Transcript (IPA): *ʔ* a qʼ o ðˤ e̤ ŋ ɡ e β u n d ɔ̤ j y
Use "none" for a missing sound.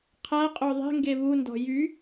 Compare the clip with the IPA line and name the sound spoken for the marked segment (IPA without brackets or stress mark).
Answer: qʰ